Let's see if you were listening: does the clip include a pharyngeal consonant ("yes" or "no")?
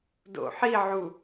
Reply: yes